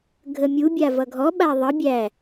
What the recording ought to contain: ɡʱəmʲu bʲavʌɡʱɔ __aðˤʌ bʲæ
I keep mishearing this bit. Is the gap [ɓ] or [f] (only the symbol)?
ɓ